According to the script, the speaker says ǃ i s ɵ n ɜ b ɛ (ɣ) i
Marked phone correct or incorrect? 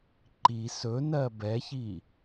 incorrect